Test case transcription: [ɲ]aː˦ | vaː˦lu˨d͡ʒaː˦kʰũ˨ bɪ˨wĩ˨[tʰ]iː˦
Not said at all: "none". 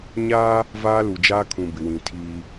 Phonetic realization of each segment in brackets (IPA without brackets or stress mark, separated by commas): ɲ, tʰ